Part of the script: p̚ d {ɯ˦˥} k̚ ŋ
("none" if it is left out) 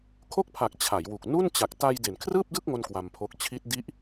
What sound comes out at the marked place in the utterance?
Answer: ɯ˥˩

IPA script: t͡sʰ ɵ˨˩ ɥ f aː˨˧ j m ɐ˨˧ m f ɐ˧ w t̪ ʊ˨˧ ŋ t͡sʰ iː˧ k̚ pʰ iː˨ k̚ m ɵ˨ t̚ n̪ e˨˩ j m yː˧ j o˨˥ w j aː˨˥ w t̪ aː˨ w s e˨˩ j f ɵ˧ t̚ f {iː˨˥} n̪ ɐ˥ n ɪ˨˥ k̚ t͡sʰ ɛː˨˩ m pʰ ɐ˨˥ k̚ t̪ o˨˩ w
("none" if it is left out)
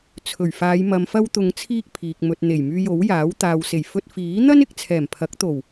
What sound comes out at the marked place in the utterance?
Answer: iː˨˥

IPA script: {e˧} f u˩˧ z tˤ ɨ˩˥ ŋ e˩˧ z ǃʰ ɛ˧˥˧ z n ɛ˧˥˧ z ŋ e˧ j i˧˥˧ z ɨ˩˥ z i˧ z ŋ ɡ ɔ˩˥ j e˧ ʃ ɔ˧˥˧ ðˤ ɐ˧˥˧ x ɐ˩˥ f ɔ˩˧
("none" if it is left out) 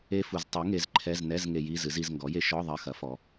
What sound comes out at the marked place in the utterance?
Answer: e˦˥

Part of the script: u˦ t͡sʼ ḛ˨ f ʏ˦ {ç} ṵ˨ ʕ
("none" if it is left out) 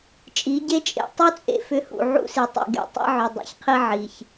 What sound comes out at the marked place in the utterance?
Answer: h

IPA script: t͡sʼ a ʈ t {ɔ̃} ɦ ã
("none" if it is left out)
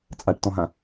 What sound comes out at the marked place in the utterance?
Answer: ɔ̃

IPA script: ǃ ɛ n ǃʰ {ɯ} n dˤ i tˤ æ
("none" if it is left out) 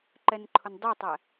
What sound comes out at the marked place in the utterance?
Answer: ʊ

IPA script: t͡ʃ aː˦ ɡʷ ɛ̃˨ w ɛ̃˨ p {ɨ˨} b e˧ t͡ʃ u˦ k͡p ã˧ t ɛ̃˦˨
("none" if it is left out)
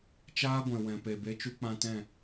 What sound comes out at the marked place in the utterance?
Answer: e˨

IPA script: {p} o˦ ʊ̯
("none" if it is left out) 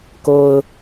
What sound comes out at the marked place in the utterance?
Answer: k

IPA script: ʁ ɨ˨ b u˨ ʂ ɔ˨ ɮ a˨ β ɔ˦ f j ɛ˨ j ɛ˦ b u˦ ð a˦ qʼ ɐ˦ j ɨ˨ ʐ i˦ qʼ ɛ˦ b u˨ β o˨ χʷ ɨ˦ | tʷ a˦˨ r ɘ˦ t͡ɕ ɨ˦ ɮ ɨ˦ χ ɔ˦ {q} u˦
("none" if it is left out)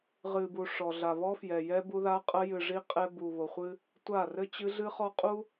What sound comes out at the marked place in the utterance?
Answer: qʼ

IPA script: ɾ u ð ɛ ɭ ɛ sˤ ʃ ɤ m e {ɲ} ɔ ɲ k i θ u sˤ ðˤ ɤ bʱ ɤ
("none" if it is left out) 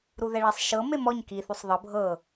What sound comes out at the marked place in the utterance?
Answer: m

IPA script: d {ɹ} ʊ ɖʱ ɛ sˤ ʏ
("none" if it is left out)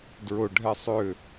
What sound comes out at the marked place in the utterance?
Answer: ɹ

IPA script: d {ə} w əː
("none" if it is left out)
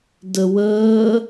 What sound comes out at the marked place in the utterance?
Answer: ə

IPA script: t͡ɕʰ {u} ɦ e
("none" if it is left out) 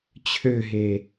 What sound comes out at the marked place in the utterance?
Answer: ø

